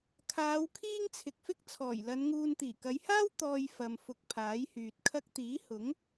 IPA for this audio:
kʰ aː˨˧ w kʰ iː˥ ŋ t͡sʰ ɪ˨ k̚ f ɪ˥ k̚ t͡sʰ ɔː˨˩ j l ɐ˨˧ n ŋ uː˧ n t̪ iː˨˩ k ɐ˨˧ j h aː˥ w t̪ ɔː˧ j f ɐ˨ m f ʊ˧ k̚ pʰ aː˨˥ j h yː˨ t̚ kʰ ɐ˥ k̚ t̪ iː˨˥ h ʊ˨˥ ŋ

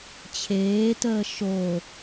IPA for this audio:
t͡ɕʰ eː t əː ʃ o

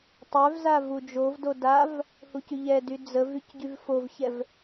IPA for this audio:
tˤ œ v z a v u d͡ʒ o v d o d a v | h u c y ʎ ɛ d y d͡z ə v y c ɟ y v f o v ç ɛ v

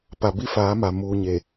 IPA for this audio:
p a˨ b i˦ f aː˨˦ m a˨ m uː˨ ɲ e˨

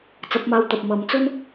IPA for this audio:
t͡s ɐ˨˥ p̚ m aː˧ w t̪ ɐ˨ p̚ m ɐ˨˥ m t͡s ɵ˥ n

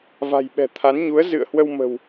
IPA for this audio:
v a̤˨˩ j ɓ ɛ̤˨˩ t̪ʰ a˨˦ n ɲ u˨˦ ə̯ z ɨ̰˧˨ ə̯ h w ə˧ w m ə̤˨˩ w

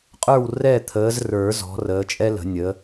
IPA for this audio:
qʼ ə˞˦˨ w r ɛ˦˨ t̪ʰ əː˨˦ z r ə˞˨˩˦ z ɔ̤˨˦ r əː˨˦ t͡ʃʼ ɛ˥ l ə̤˨˩˦ nʲ ə˨˦

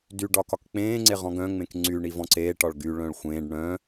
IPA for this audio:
d y ɖ ɒ k ɒ k k͡p ẽː ŋ͡ǀ e ʁ ɔ̃ ɡ œ̃ ŋ͡m ẽ k ŋ͡ǀ y ɳ i v ɔ̃ ǀ eː ʈ ɒ ɭ ɡ y ɭ œ̃ ɭ xʷ ẽː ɖ ɳ œ̃

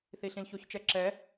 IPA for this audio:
θ i ɬ ĩ l ç o ç t͡ʃ ɛ ǁ ɛ

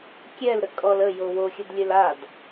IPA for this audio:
kʲ ɛ l ɾ ə kʼ ɔ l ə j o w o xʲ ə d lʲ ø l a d

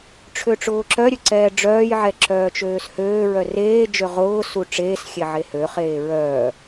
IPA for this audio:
ʈ͡ʂʰ ø ʈ͡ʂ ʊː ǁ œ ɾʲ ø ǀ ɛː ɖ͡ʐ œː j ʕ ɛ ǁ œː t͡ʃ øː s h øː ɹ œ r eː d͡ʒ ø ʁ ʊː s u ʈ͡ʂ eː s xʲ e ʕ e h ø χ eː ɹ œː

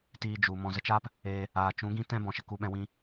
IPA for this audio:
t iː˧ d͡ʒ u˨ m ɔ̃˨ z ə˧ t͡ʃ aː˦ p | eː˧ | aː˨ t͡ʃ ũ˨˦ ɡ ĩ˦ t ɛ̃˦ b ɔ̃˨ ʃ ə˨ k u˧ ɓ ɛ̃˧ w ĩ˦

